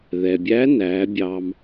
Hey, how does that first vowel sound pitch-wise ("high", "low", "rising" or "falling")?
low